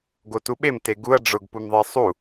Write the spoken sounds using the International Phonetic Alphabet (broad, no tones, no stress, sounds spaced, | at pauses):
ɡ o t u ɓ e m t e ɡ u ɐ̯ ɖ͡ʐ ʊ ɡ p u m ðˤ e sˤ u